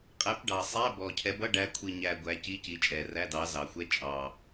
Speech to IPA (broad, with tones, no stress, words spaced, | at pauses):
qʼæ˨˦pɖɑ˨˩ sˤæ˧˥˧bɔ˨˩cʰɛ˨˦ bʌ˧˥˧ɖæ˨˦kʷʰi˨˩ɲæ˨˩ ɡʷæ˨˦ci˧˥˧ci˨˦t͡ʃʼɛ˨˩ ræ˧˥˧dɑ˨˦zɑ˨˩xʷɛ˧˥˧ t͡ʃʼɑ˨˩